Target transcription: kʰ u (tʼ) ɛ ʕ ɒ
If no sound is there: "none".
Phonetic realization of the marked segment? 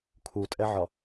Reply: tʼ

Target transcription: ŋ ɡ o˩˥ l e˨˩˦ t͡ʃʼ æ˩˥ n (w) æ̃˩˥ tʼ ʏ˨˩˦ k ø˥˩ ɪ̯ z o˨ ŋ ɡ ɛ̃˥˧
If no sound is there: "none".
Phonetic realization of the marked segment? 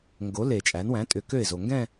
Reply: w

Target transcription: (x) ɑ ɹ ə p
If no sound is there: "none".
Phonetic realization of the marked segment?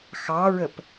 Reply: x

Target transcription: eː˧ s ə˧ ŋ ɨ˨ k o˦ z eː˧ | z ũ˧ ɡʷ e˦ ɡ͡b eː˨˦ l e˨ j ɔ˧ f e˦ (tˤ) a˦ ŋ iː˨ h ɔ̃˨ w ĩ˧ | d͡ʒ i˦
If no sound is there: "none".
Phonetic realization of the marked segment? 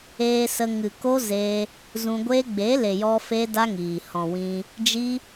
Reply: d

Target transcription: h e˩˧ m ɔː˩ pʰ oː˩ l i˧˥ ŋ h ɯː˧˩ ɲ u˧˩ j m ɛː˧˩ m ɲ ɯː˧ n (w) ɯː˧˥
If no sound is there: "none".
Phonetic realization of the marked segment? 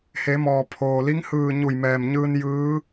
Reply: j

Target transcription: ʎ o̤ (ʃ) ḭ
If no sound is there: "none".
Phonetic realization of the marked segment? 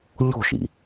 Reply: ʃ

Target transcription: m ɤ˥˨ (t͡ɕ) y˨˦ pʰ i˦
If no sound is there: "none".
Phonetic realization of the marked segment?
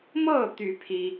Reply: t̪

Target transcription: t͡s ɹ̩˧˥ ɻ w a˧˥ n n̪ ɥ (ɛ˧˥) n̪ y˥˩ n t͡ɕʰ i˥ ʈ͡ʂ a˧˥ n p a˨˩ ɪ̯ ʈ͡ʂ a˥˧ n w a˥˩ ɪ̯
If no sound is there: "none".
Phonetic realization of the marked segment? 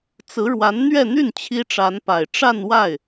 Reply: ɛ˥˧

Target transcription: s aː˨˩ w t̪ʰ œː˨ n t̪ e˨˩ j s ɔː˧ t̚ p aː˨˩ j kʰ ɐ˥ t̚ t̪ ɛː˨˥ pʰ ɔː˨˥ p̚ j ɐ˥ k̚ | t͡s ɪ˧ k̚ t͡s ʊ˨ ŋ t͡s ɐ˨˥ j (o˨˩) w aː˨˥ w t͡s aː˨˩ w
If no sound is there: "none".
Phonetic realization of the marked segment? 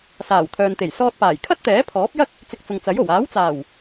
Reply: o˨˩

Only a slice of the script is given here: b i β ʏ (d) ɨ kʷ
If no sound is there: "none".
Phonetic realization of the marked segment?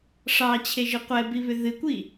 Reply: ð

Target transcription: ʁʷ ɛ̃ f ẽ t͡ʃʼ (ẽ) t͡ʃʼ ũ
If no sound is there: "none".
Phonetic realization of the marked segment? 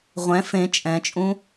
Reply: ɛ̃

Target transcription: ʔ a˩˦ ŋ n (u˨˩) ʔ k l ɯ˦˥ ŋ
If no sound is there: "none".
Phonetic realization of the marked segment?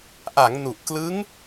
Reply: u˨˩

